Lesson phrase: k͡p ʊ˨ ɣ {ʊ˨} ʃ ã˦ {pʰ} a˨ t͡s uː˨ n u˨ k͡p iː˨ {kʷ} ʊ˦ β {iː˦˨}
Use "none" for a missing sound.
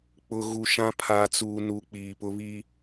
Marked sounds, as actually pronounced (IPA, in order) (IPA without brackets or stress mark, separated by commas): u˨, pʰ, p, iː˦